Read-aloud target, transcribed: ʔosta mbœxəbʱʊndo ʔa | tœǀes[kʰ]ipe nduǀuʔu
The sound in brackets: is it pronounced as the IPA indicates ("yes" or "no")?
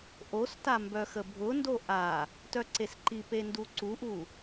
no